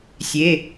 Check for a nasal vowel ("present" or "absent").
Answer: absent